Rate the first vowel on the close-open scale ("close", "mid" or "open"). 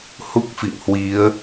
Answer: close